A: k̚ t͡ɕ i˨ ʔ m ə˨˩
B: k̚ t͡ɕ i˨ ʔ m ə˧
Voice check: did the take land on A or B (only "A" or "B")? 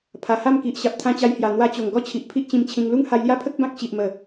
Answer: A